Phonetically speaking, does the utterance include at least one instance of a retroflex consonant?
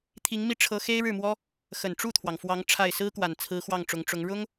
yes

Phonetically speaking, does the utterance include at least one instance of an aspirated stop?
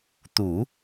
no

